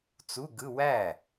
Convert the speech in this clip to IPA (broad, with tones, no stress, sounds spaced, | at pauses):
t͡s u˧˥˧ ɡ ɯ˧˥˧ w æ˥˩